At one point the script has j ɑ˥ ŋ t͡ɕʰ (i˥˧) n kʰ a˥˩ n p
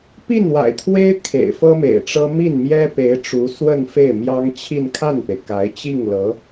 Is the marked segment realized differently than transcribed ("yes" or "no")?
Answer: no